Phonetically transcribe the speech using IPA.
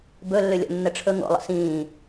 b ɵ lː ʏ lʲ ɔ̰ nː ə ʈ͡ʂʰ ɵ ŋ o̰ lˠ ə̰ s ĩː

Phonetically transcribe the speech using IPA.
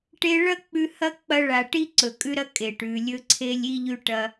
ʈ e˧ ɭ ɐ˦ k͡p ʉ˧ h ɐ˦ k͡p ɐ˧ ɭ a˨ ʈ i˦ ǀ ɵ˨ kʼ ʉ˦ ɾ ɐ˦ kʼ e˨ ʈ ʉ˨ lʲ ɵ˧ ǀʰ e˧ lʲ i˧ ʎ ʉ˧ ʈ ɐ˧

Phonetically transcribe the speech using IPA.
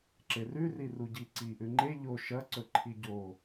ǁ e r ʉ r i r u ɟ i ǀ i ʔ ʉ ŋ͡ǃ e ʎ o ʃ ɐ ǀ ɵ ǃʰ i ɟ o

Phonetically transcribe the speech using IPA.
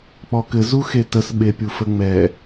k͡p ɔ k ɘ z u x e t ə s ɓ e pʲ u f ə ŋ͡m ɛ

